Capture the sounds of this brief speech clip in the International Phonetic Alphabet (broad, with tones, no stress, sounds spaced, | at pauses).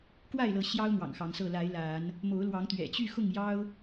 k w a˥˨ ɪ̯ l ɤ˨˦ ɕ j ɑ˦ ʊ̯ n̪ w ɑ̰˨˩ ŋ x ɑ˨˦ ŋ s ɤ˥˨ l a˨˦ ɪ̯ l a˨˦ n | m o˨˦ ʊ̯ l w ɑ˨˦ ŋ t̪ ɥ ɛ̰˨˩ t͡ɕ y˥˨ x ʊ˥˨ ŋ j ɑ˦ ʊ̯